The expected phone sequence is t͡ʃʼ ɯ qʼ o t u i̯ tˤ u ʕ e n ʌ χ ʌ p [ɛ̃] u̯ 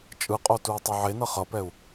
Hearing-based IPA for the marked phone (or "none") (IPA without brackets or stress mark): ɛ